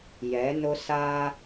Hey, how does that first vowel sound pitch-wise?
rising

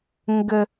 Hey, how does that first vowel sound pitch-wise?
low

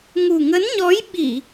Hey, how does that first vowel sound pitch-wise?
low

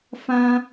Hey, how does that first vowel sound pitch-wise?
high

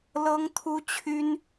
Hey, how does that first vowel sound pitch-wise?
high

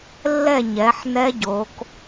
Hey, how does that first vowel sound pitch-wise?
falling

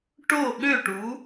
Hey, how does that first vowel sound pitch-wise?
falling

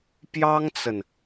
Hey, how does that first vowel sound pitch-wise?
high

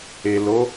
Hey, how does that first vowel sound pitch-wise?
low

